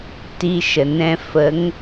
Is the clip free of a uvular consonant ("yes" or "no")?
yes